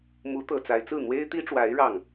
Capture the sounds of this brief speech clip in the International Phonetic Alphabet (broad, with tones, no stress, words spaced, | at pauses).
mu˧˥t̪ɤ˨˩ t͡sa˧˥ɪ̯t͡sɹ̩˥˩ n̪we˥ɪ̯t̪i˥ʈ͡ʂwa˧˥ɪ̯ ɻɑ˥˩ŋ